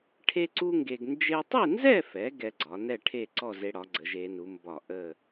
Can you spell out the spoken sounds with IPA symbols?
ʈʰ e˥ ǀ u˥ ŋ ɡ e˧ ɡ n d͡ʒ e˧ tˤ e˥˧ n z ɛ˥˧ f ɛ˩˧ ɡ ɛ˧ ɡ͡ǀ ɒ˩˧ n ɛ˥˧ ʈʰ e˥˧ ǀ ɔ˥˧ z e˧ ɽ ɒ˩˧ ɡ͡ǀ ə˩˧ ʒ e˩˧ n u˩˧ m b ɒ˧˩ ʔ ə˧˩

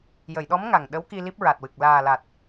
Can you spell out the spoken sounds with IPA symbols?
j ə˨˩˨ j ɗ ɔ˧˥ m ŋ a˨˩ ŋ ɗ ə˧˥ w k i˧ l i˦˥ p̚ ɹ a˨˩ t̚ w ɨ˨˩ k̚ l aː˨˩ l a˨˩ t̚

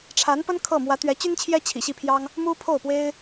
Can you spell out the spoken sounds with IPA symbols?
ʈ͡ʂʰ a˧˥ n p ə˥ n kʰ ɤ˥˩ m w ä˧˥ t̪ ɥ ɛ˧˥ t͡ɕ y˥ n t͡ɕʰ j ɛ˥ t͡ɕʰ ḭ˨˩ ɕ i˥˩ pʰ j ɑ˥ ŋ | m u˥ pʰ o˥˩ ʊ̯ p w e˥ ɪ̯

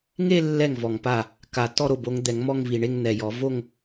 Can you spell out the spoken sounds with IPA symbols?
ŋ e˥˧ lː ɛ˥˩ ŋ v ɔ˨˩ ŋ p a˥˩ | k a˨˩˦ t ɔ˥˧ ɾ o˥˩ b o˨˦ ŋ d̪ ɛ˨˩˦ ŋ m ɔ˥˧ ŋ v i˨˩ ɳ e˥˧ ŋ n̪ ɛ˨˩ j ɔ˨˩˦ v o˥˧ ŋ

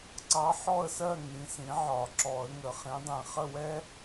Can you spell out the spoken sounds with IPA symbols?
ǀ ɑ˧˥ ħ ɔ˥˨ ə̯ s ɜ˥˨ ŋ ĩ˩˥ s ĩ˩˥ ʕ ɒ˨˩˦ ǁ ɔ˨˩˦ ə̯ ŋ ə˨˩˦ χ ĩ˩˥ dˤ ĩ˨ χ ə˥˨ w ɛ˥

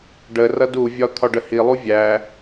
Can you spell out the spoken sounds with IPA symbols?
ɖ ə r ʌ d u vʲ ɒ t̪ʰ ɒ ɖ ə h i lˠ u vʲ æ

